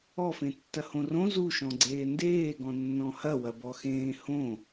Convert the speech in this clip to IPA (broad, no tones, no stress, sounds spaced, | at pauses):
ɔ f ẽ tː ɐ h õ r õ z u ʃ ɔ̃ ɡ͡ǀ eː n d eː ɡ ɔ̃ nː ɔ̃ h ɐ w ɐ b ɔ x ẽː h õ